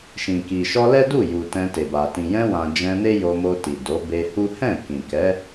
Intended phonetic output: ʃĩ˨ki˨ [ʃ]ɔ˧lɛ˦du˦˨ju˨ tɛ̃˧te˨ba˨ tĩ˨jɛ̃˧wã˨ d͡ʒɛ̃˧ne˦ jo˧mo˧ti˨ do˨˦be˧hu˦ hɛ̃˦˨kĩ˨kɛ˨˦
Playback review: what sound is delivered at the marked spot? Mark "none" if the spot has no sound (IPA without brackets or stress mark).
ʃ